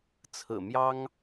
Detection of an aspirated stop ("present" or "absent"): present